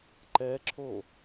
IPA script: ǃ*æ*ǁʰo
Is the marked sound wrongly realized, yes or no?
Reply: yes